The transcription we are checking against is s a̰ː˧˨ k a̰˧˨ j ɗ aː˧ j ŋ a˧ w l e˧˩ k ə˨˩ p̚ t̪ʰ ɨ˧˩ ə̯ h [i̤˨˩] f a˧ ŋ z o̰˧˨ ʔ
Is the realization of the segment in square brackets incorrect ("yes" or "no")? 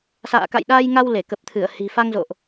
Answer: no